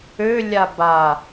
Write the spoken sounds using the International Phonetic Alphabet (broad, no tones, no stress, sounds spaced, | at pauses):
ø lʲ a b a